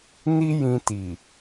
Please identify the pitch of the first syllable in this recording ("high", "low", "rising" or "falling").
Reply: high